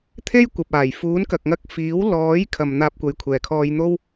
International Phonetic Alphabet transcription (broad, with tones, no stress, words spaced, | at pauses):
t̪ʰe˥j kʷɐ˨p̚aː˨˩j fuː˨˥nkɐ˨k̚ŋɐ˧k̚ fiː˨˥wlɔː˨˥j kʰɐ˨m n̪aː˧p̚kʷɐ˨˧jkʷʰɛː˨˩ kʰɔː˧jn̪o˥w